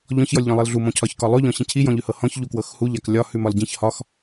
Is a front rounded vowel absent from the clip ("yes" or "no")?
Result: yes